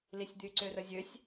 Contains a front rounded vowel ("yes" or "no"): yes